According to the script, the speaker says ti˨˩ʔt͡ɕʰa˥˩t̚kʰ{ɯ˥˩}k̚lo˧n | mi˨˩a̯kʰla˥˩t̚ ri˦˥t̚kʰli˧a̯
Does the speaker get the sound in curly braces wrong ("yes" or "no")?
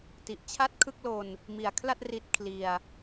no